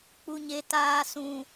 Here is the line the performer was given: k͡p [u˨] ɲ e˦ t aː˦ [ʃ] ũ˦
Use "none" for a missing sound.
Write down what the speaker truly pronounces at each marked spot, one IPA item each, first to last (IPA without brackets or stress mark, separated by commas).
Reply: u˦, s